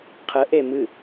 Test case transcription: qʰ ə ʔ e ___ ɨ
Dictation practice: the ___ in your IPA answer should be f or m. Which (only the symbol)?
m